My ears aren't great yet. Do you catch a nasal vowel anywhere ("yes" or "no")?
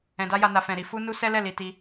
yes